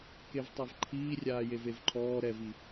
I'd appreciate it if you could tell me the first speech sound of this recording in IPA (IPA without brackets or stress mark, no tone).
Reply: k